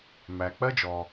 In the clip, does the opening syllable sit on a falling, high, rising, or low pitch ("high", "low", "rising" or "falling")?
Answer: low